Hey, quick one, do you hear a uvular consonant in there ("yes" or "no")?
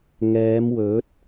no